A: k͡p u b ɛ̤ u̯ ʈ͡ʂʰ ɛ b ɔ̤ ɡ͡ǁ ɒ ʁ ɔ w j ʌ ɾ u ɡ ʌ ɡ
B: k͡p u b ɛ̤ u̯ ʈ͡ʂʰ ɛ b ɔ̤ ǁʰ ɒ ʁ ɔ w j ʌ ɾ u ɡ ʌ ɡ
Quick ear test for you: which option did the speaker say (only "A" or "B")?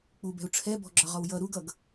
A